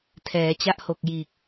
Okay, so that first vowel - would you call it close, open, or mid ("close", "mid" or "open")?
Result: mid